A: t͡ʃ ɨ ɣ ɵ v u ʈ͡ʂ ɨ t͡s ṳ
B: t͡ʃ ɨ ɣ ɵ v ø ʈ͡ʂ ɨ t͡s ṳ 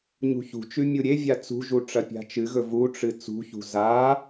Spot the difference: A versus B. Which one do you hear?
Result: A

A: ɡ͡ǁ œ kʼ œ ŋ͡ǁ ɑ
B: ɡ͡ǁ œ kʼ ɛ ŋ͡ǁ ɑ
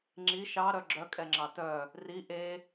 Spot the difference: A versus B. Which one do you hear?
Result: B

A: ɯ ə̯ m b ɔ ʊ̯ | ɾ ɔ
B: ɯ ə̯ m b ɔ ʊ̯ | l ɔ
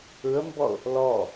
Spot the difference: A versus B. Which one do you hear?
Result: B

